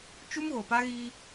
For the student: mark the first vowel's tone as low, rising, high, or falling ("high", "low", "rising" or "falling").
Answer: high